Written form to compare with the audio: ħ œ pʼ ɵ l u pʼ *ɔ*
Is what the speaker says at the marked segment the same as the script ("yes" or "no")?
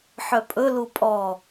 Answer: yes